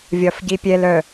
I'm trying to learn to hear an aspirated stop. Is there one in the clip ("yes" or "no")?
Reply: no